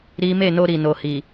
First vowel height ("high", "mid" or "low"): high